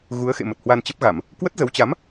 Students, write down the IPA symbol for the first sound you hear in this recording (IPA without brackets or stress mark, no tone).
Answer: ɣ